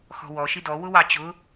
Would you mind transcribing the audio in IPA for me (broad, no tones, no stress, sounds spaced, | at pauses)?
x ɔ̤ w ɔ ʃ i d ɔ w ʊ w ɑ t͡ɕ ʊ